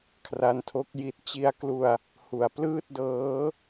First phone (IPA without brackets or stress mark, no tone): kʰ